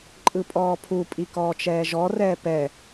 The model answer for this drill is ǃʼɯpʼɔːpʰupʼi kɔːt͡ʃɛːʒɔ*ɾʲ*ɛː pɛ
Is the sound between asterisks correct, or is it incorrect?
incorrect: r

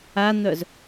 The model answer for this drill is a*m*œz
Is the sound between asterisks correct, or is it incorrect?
incorrect: n̪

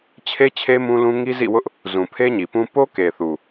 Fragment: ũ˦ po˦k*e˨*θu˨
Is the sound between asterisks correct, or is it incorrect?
correct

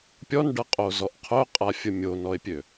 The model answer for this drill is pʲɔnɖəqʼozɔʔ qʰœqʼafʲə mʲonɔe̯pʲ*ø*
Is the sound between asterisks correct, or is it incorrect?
correct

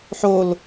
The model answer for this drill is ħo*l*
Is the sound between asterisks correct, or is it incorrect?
correct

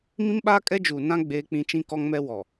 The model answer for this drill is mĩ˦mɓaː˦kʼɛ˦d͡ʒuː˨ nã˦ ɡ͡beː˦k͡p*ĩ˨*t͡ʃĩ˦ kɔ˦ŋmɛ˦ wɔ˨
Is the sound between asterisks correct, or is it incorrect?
incorrect: ĩ˦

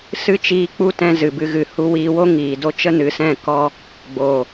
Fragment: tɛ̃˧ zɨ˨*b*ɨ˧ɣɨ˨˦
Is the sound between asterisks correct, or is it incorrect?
correct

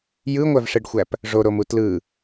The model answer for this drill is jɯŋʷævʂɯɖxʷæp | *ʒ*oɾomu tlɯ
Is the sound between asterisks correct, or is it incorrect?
incorrect: ʐ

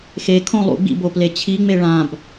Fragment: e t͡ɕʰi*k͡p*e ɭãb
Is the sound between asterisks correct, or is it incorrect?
incorrect: ŋ͡m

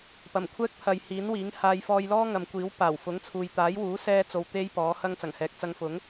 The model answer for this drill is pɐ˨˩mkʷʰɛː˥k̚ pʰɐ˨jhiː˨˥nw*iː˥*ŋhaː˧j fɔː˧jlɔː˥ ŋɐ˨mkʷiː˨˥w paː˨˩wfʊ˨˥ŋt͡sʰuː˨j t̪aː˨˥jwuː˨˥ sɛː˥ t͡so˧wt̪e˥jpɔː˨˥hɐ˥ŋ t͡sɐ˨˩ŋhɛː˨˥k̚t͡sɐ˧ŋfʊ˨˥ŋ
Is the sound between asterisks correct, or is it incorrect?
incorrect: iː˨˥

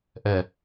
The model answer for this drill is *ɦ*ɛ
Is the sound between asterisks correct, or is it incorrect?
incorrect: ʔ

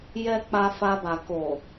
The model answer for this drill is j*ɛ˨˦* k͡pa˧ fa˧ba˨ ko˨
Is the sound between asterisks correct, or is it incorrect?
incorrect: ɛ˧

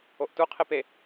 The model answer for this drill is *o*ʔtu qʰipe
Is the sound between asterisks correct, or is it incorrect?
correct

